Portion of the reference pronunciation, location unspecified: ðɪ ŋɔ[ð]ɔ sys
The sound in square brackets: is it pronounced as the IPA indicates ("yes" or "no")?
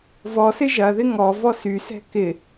no